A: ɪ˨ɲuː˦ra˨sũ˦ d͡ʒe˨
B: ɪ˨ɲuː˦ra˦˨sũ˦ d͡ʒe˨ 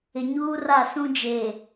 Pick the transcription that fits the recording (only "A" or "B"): B